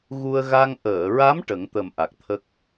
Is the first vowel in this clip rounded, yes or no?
yes